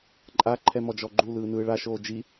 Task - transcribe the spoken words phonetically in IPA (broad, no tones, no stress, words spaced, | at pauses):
ǃʼa ǃʰɛmɔd͡ʒɔɡ͡ǃu lɯːnɯːɭa ʃoːd͡ʒi